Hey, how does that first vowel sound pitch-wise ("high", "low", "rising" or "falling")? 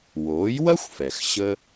rising